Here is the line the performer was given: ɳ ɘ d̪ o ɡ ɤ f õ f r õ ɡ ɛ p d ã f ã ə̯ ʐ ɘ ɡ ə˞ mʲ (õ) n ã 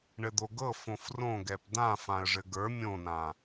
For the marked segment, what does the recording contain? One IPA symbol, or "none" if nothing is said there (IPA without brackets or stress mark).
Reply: õ